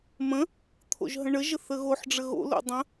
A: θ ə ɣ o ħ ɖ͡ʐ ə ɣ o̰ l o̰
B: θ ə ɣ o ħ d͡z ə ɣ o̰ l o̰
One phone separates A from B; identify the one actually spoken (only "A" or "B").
A